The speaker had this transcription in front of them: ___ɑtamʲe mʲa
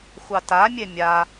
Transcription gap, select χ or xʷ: xʷ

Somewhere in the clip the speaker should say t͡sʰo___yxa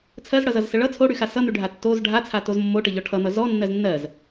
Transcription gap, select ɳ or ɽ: ɽ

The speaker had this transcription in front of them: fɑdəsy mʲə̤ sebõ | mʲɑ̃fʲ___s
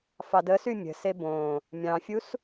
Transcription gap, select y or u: u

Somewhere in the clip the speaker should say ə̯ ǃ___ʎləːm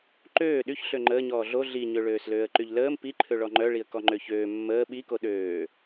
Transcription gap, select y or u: y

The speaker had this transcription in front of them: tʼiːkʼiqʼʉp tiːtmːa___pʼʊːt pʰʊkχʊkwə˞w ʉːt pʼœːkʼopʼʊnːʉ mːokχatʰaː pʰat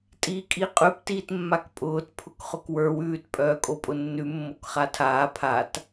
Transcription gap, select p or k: k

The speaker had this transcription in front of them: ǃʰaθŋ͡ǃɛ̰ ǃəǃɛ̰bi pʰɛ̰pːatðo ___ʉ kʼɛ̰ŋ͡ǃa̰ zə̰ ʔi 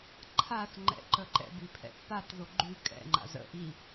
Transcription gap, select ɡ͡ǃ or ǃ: ɡ͡ǃ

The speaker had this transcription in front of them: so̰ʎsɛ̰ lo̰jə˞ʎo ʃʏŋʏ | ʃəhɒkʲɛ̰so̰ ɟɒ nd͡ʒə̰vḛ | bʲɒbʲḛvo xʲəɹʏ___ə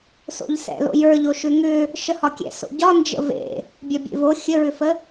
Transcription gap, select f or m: f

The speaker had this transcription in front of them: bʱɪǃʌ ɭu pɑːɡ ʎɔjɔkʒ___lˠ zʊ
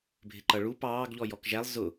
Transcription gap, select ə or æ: æ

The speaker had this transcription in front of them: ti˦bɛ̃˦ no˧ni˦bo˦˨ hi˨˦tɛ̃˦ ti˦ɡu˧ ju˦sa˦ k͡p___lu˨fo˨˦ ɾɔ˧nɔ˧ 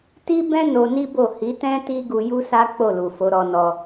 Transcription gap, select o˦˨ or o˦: o˦˨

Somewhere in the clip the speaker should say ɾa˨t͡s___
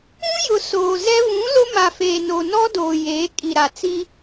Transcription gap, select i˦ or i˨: i˦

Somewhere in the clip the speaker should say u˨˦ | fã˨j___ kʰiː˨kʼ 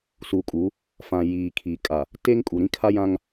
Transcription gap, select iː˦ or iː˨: iː˨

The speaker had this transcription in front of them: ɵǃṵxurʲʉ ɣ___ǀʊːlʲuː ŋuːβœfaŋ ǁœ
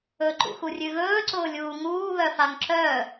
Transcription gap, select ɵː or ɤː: ɵː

